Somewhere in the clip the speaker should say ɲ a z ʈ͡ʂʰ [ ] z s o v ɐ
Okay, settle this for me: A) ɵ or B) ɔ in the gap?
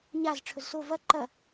A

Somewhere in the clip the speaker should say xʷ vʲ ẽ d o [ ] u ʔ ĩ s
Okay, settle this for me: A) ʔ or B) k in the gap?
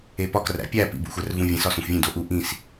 A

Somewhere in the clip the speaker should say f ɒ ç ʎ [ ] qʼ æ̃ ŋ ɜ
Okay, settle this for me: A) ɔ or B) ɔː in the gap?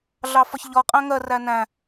A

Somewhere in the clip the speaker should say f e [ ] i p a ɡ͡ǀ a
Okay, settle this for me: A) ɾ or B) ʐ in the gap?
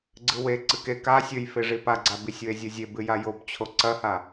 B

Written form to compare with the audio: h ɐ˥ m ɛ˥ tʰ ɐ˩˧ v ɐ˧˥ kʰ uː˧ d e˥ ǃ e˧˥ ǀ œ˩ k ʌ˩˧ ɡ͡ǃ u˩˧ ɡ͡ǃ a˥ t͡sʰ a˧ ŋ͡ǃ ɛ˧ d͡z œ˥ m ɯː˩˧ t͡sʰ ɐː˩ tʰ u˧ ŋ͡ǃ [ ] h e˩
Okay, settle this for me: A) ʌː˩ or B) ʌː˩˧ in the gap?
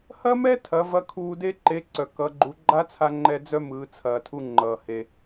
A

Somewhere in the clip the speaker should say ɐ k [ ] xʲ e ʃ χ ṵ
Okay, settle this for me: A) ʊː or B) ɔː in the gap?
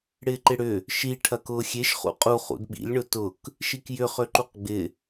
A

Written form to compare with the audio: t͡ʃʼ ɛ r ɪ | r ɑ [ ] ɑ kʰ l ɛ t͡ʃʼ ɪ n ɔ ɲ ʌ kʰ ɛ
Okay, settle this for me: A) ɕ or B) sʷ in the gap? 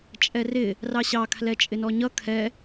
A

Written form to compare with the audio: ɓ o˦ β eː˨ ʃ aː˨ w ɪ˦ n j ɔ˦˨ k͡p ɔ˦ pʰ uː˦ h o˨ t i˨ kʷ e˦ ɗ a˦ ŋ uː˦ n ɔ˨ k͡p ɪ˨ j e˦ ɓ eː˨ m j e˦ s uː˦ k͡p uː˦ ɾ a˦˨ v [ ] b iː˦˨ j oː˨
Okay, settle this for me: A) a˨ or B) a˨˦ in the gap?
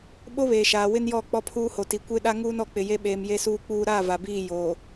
A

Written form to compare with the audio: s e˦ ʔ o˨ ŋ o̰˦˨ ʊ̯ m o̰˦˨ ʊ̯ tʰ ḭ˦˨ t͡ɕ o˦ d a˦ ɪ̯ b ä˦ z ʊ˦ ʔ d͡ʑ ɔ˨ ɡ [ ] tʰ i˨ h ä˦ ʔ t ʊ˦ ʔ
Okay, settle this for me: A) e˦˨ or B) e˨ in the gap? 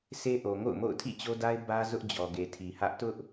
B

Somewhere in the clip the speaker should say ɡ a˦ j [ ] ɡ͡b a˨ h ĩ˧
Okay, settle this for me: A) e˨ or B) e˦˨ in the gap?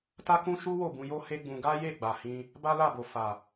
B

